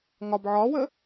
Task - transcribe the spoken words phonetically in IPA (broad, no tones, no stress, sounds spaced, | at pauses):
ŋ ɒ b ʕ ɒ w ə